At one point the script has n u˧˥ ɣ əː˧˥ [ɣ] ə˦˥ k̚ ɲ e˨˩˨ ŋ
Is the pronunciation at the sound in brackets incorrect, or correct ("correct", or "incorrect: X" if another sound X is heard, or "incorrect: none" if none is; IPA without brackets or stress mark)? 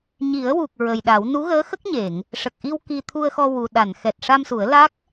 incorrect: x